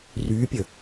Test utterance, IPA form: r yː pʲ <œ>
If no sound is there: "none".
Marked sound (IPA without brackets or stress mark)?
ə